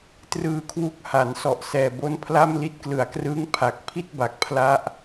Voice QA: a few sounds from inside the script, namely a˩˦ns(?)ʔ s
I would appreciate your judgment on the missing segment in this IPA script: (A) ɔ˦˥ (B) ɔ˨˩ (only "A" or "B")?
B